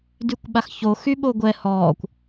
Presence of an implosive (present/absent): present